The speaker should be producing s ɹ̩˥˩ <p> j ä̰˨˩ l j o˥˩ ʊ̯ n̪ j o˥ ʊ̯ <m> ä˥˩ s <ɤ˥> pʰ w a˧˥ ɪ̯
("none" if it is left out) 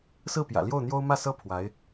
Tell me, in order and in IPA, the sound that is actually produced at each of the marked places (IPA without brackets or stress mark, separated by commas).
p, m, ɤ˥